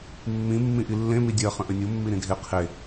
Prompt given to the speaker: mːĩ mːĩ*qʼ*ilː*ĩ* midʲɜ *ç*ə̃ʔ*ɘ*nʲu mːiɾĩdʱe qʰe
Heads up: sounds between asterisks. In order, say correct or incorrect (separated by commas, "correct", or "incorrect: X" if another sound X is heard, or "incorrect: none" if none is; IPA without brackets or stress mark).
incorrect: ʔ, incorrect: ẽ, incorrect: χ, correct